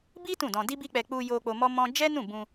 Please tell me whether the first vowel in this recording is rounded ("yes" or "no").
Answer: no